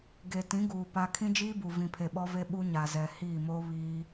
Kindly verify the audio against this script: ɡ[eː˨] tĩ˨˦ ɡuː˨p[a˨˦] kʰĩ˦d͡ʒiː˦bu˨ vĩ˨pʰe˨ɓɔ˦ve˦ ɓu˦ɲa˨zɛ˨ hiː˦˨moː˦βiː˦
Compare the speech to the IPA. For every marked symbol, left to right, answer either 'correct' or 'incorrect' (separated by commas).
incorrect, incorrect